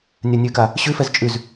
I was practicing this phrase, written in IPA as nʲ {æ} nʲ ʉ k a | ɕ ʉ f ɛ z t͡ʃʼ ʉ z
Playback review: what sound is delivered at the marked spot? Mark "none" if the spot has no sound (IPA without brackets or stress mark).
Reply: a